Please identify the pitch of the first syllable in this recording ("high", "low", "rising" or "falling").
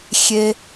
high